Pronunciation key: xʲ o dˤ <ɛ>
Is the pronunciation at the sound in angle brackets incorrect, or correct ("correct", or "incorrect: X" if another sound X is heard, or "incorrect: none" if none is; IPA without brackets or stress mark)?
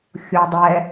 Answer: correct